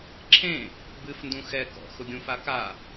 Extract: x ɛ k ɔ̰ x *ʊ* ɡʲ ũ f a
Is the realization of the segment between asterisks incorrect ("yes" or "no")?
no